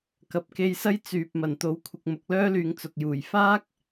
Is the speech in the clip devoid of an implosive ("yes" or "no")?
yes